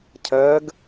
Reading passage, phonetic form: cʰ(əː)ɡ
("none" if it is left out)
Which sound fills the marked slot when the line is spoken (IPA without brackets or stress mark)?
əː